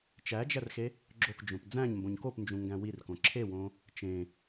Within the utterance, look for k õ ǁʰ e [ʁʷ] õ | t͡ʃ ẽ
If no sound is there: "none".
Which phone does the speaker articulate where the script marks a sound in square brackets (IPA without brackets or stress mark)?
w